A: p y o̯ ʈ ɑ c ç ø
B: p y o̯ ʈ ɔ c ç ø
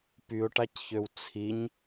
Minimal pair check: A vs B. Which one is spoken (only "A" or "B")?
A